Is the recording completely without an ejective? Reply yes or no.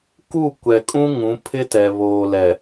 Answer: no